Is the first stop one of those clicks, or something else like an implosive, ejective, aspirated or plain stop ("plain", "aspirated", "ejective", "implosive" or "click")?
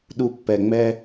implosive